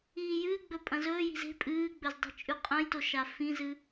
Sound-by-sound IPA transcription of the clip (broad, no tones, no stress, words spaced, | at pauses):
iːjɨːɡ͡bɵ pʼɐ̃zɵːji̤z e̤ pʼɨːɡ͡bɵz dˤi̤t͡ʃʼʉqʼɐ̃jto ʃafĩzɨ